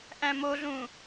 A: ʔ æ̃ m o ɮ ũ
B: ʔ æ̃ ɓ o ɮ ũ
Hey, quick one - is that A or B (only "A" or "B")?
A